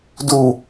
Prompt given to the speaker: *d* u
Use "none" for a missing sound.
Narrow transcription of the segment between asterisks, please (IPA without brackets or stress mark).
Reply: d